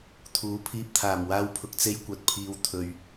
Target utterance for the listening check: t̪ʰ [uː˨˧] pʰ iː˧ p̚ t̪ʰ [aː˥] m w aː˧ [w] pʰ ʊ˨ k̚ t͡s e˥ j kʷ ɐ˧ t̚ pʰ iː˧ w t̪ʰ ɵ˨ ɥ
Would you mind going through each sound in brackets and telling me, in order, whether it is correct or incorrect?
correct, incorrect: aː˨˩, correct

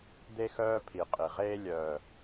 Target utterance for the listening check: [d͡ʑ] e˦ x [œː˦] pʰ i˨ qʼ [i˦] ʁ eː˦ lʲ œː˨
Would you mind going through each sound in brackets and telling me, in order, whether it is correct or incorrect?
incorrect: d̪, correct, incorrect: i˨

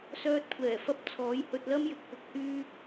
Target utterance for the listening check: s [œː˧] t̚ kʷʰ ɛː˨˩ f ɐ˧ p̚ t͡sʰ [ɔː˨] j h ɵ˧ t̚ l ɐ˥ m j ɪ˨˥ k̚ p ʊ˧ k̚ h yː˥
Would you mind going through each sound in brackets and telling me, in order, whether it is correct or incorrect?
correct, incorrect: ɔː˨˥

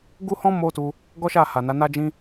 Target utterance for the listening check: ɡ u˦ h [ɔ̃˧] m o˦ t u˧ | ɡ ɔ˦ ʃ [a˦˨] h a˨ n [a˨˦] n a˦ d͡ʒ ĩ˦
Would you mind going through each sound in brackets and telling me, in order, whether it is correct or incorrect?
incorrect: ɔ̃˦, correct, correct

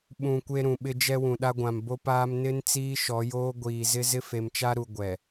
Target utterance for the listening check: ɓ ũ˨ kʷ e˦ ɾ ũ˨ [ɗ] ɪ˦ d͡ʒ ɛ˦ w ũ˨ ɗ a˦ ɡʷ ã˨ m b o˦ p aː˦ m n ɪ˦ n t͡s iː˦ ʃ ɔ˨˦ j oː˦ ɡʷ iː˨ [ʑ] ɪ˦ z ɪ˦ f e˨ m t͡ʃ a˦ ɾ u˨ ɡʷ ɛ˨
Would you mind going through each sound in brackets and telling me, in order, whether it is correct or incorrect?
incorrect: ɓ, incorrect: z

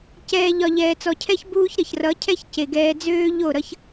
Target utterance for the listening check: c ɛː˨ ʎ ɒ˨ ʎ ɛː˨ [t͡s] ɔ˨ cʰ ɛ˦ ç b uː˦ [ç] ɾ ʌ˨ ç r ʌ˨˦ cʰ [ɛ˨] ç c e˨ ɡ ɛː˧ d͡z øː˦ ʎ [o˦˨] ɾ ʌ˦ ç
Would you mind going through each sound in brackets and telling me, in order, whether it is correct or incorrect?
correct, correct, incorrect: ɛ˦, correct

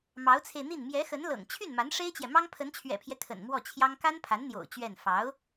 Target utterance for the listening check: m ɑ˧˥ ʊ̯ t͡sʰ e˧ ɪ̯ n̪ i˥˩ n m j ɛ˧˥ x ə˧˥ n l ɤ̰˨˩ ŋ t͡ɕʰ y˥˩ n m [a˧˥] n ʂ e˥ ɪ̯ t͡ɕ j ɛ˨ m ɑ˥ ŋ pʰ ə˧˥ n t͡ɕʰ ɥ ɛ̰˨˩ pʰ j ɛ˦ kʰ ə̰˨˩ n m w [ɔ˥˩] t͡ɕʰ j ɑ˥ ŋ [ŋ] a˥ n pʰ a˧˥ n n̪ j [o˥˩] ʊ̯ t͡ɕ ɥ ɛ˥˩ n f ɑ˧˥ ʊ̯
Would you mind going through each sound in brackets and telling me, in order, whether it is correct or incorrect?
correct, correct, incorrect: k, incorrect: o̰˨˩

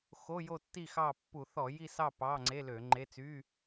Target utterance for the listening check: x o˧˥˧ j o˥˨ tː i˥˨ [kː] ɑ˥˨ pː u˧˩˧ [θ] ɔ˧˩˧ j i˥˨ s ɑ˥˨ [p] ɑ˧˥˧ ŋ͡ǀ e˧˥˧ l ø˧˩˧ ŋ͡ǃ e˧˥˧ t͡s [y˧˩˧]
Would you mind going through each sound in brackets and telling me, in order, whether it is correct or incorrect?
incorrect: x, correct, correct, incorrect: y˧˥˧

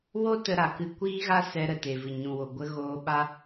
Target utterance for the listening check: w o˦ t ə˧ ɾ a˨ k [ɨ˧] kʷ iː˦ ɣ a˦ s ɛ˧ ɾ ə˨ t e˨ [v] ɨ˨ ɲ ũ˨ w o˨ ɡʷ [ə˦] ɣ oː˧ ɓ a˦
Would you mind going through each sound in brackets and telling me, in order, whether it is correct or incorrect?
correct, correct, incorrect: ə˧

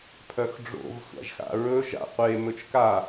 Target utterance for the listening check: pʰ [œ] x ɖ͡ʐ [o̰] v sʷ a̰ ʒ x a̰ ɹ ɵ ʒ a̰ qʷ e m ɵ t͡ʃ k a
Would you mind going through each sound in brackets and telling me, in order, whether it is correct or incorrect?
correct, correct

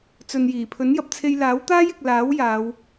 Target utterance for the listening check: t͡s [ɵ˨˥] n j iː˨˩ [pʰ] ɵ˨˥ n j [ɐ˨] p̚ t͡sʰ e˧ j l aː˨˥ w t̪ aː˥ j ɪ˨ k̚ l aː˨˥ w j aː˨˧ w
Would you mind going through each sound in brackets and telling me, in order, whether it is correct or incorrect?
incorrect: ɵ˨, correct, correct

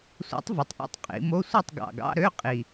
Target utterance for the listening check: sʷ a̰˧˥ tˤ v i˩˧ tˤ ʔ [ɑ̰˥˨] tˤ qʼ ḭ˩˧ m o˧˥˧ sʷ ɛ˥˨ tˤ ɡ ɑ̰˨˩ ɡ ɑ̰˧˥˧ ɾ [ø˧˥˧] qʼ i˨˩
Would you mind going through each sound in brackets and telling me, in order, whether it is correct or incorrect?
correct, correct

